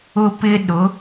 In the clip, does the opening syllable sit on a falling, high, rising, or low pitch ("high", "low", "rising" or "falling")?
high